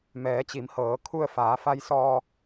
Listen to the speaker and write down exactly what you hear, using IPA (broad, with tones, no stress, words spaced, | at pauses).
mɛː˩˧t͡ɕi˩˧mhɤː˩˧ kʰu˧ə̯faː˩˧fa˧jsɔː˧